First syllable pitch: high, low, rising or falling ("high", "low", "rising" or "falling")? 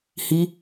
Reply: high